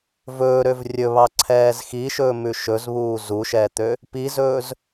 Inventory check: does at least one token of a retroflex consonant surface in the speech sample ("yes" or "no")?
no